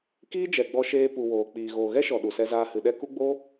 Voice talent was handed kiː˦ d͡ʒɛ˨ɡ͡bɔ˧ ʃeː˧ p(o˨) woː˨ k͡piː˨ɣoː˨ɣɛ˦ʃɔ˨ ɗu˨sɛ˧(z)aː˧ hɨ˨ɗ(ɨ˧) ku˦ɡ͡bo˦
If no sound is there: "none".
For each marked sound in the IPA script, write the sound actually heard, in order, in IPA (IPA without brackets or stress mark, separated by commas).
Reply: u˨, z, ɛ˧